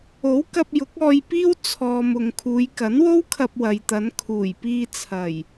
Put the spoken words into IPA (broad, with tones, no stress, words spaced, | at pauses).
o˨˥wkɐ˧p̚ jʊ˨˥k̚ɔː˧jpiː˥w t͡sʰɔː˨m ʊ˨ŋkʰuː˨˧j kɐ˨˥nwo˥wkʰɐ˧p̚ wɐ˨jt̪ɐ˨˧n kʰuː˨˩jpiː˧t͡sʰɐ˨˩j